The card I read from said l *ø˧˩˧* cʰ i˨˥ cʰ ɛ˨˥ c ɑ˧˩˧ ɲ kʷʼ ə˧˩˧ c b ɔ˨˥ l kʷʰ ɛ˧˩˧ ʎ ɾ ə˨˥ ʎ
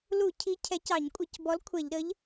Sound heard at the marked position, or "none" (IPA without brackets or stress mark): u˧˩˧